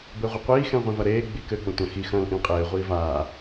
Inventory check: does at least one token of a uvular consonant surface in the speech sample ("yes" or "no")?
yes